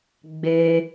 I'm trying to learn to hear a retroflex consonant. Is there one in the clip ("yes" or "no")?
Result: no